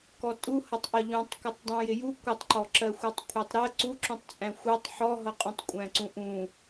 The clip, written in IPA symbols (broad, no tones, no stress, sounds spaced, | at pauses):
k ɔ tʼ u h ʌ tˤ ʔ ʌ ʎ ũ tˤ k ʌ tˤ dˤ ũ j ɪ j u kʷ ɪ tˤ ǃ ɔ ǁ ɜ xʷ ɜ tˤ kʷʰ ɜ tˤ ɾ ɜ ǀ u ǁ ũ tˤ t͡sʼ æ̃ xʷ ɜ tˤ ħ ɔ ɦ ʌ qʼ ũ tˤ kʷʼ æ̃ ǀ ũ ʔ ũ